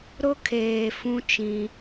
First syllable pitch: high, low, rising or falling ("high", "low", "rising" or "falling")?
high